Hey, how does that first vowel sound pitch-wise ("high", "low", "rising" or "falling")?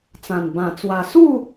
low